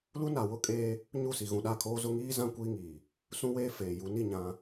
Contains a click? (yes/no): no